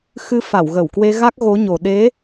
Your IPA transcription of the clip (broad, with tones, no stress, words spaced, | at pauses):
xɨ˧ fa˧˩wɣə˧˩wkwe˧ɣa˦˥k̚ ɣo˨˦ɲo˨˩ ɗe˨˦